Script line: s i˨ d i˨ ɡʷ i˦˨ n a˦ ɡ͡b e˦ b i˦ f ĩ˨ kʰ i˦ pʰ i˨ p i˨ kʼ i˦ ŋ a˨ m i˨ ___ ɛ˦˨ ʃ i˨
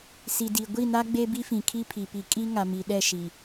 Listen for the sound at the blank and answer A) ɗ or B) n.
A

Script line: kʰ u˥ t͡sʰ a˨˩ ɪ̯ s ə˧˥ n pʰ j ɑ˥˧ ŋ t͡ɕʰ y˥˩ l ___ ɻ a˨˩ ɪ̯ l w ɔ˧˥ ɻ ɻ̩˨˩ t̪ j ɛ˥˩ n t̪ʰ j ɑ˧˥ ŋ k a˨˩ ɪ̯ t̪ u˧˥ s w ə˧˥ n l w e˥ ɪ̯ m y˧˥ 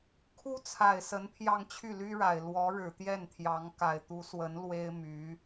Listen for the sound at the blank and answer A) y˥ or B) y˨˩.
A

